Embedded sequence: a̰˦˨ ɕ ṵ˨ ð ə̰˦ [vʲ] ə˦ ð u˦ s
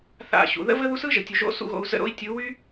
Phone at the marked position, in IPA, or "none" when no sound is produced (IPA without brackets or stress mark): v